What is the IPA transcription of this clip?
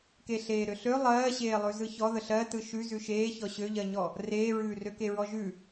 k e ɬ eː ɾ ø ɬ ø lˠ ɜː ɕ eː lˠ ʉ z ɯ ç ɔ ð ə ɬ ɜ t ɯ ʃ ʉ z ʉ ʃ eː ç ɔ ɕ ø ʎ ɜ ɲ ɔ | r eː ɹ ʉː r ø k e ɹ ɔ ʒ ʉ

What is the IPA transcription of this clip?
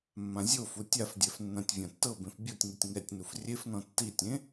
mː ã zʲ o f u tʲ a f dʲ ɛ f nː ã tʲ vʲ ã tː ɤ b ẽ f bʲ o tʲ ŋ u tʲ ŋ ɛ tʲ n u f rʲ e f n ɔ̃ tː i tʲ ẽ

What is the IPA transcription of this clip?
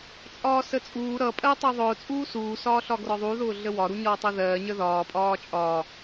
t͡sʼ ɒː s ə t͡sʼ uː ɾ ʌ pʼ ɜ tˤ ʌ ðˤ ʊː t͡sʼ uː s uː s ɒː ɬ ɒ ɡ r ɒ ðˤ u ð ʊː ɮ ə w ɒ ɾ u ɲ ɒː tˤ ʌ ð ɜː ɲ ə ð ɒː pʼ ɒː t͡ʃʼ ɒː

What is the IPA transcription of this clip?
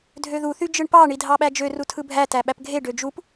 dʱ ø ð u θ y d͡ʒ ɯ ɳ p ɑ ɳ i dʱ ɑ ɓ æ d͡ʒ ø r u tʰ ɯ bʱ æ t æ ɓ æ p ɡʱ e ɖ ø d͡ʒ u p

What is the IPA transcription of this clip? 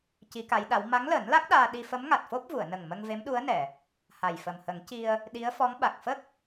c i˧˥ k a˧˥ j ɗ a˧˥ w m a˧˥ ŋ l əː˨˩˦ n l a˦˥ k̚ ɗ aː˧ ɗ i˧ f ə˧˥ m ŋ a˨˩ t̚ f o˦˥ p̚ v u˨˩˨ ə̯ n ə˨˩ ŋ m ə˧ ŋ v e˧˥ m ɗ u˧˥ ə̯ n ɛ˨˩˨ | h a˨˩ j f ə˨˩ m h ə˨˩˦ ŋ c i˧ ə̯ | ɗ i˧˥ ə̯ f ɔ˧˥ ŋ ɓ a˨˩ k̚ f ə˦˥ k̚

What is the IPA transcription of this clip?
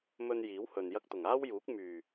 m ɵ˧ n j iː˨˥ w h ɵ˨ n j ɐ˧ k̚ t̪ ʊ˨˩ ŋ aː˥ w j uː˨˥ k̚ m yː˨˩

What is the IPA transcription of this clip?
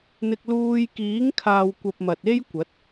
n̪ ɪ˧ k̚ l uː˧ j k iː˨˥ ŋ kʰ aː˨ w kʷ ɐ˨ p̚ m ɐ˨ t̚ e˥ j kʷ ɐ˨˥ t̚

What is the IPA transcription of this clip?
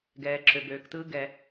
ɡ ɛː˩ ǁʰ ø˩ b øː˩ k t ɯː˨ ɡ ɛ˩

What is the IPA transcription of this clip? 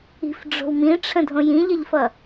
i̤ f ɖ͡ʐ o̤ w m ĩ ʈ͡ʂʰ ə̃ dʱ õ j ĩ ʎ ə ʎ f ʌ

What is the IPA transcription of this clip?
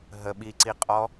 ɦ ə ɓ i ǀ i qʼ ɔ

